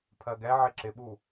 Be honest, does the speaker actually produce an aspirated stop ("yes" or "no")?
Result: yes